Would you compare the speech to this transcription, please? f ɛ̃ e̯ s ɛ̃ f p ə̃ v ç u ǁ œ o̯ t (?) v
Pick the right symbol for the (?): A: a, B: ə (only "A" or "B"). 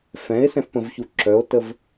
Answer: B